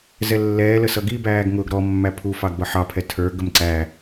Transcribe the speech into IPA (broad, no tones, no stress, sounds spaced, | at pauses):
z ɛ lː ɛː l ə s ʌ ɡ i b æː ɡ ŋ ʊː ɡ ɾ ɔ mː æ pʰ u f ɑ ɡ b ʌ ħ ɑ pʰ ɛ tʰ ə˞ ɡ ə m ǀ æ